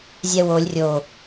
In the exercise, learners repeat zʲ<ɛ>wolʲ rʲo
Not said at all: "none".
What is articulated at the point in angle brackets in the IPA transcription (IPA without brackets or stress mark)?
ɛ